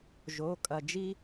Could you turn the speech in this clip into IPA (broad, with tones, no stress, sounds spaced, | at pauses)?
ʒ o˧˥˧ kʼ ɐ˧ d͡ʒ i˥